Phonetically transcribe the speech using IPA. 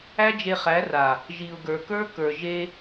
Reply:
æ˦ d͡ʒ e˧ χ æ˨˦ r a˨ | ʒ i˨ ʊ̯ ɡ ə˞˨ k ə˞˦ k ə˞˨ ʒ e˧

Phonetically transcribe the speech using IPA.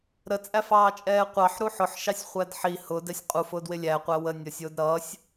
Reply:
ɾ ə t͡sʼ æ f ɑː t͡ʃʼ ɛː qʷ ɑ ħ ɾ u ħ ʊ ħ ʃ ɑ sʲ χʷ æ d ħ i h ʊ d ɛ sʲ qʼ u f ʊː d w ɪ lʲ æ qʷ æ w ə nʲ ʌ sʲ ʊː d ɾ ʌː sʲ

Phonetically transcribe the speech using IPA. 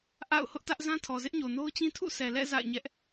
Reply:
ʔ a̰˦˨ ʊ̯ h ʊ˦ ʔ t ä˦ ʔ z ã˦ tʰ ɔ˨ z ɪ˦ ʔ ɲ o˨ n o˦ ʊ̯ t͡ɕ ĩ˦ tʰ ṵ˦˨ s ɛ˨ l ɛ̰˦˨ z a̰˦˨ ɪ̯ ɲ ɛ˦ ʔ

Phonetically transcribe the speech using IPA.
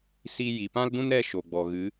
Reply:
s i˧ j i˨ p ã˦ l d ũ˦ n ɾ ɛ˦ ʃ o˨ ɡ͡b ɔ˨ ɣ ɨ˨˦

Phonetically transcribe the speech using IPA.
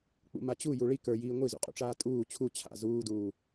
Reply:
k͡p ṵ m a t͡ɕ u j u ɭ i k ə˞ j iː ŋʷ i z ṵ qʼ ṵ ʈ͡ʂ aː tʼ uː t͡ɕʰ u t͡ɕʰ a̰ z uː d uː

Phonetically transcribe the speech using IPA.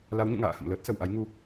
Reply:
l a˨˦ w ɲ ṵ˧˨ ŋ a̰ː˧˨ h ə̰˧˨ m l əː˦˥ t̚ s ə˧˩ w ʔ a˨˦ j ŋ u˨˦

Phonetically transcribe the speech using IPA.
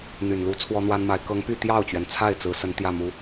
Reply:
n̪ y˨˩ n l u˧˥ t͡sʰ w ɔ˥ n̪ w a˥ n m a˧˥ ɪ̯ k ɤ˧˥ ŋ p y˥˧ t̪ j ɑ˥˩ ʊ̯ t͡ɕ ɥ ɛ˩ n t͡sʰ a˥˩ ɪ̯ t͡s ɹ̩˧˥ s ə˧˥ n t̪ j ä˥˩ m u˧˥

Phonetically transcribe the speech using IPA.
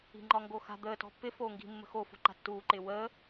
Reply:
i̤ ŋ͡ǃ ɒ ŋ ɡ o x a̤ d̪ əː t ɔ̤ pː ɪ f oː ŋ ɡ i̤ mː ə̤ x o f o̤ ǃ a̤ tː uː ǃ ɪː w əː

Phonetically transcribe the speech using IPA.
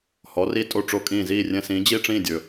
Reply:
h ɔ˩˥ r i˧ tʼ o˥˩ ʈ͡ʂ o˥˩ kʼ ĩː˥˩ z iː˥˩ rʲ ɛ̃˧ s ĩː˩˥ d͡ʑ i˥˩ ʈ͡ʂ ĩː˥˩ dʲ ɵ˩

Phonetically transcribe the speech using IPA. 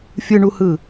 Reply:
fʲ ɯ ɳ u h ɯ

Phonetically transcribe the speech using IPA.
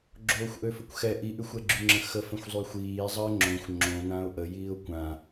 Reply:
ɡ͡ǁ oː xʷ ʔ ø f ə kʷ x ɛ ʔ i ʔ y xʷ ɛ ɡ͡ǁ y ŋ͡ǁ ə̃ x ə f ə̃ xʷ zˤ y xʷ iː zˤ əː ŋ͡ǁ õ xʷ ŋ͡ǁ õ n ã ʊ̯ ʔ ə j iː ʊ̯ kʷ ã

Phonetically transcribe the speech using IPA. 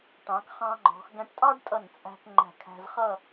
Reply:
ʈ ɑ̃˩˧ k χ ɑ̃˧ ŋ͡ǃ ɔ̤˩˧ x ɡ æ̃˧ ʈ tʼ ɑ˥ ɖ tʼ ʌ˧˩ n t͡sʼ æ̤˧ k ŋ͡ǃ æ̤˧˩ kʰ æ̤˧ z χ ʌ˥˧

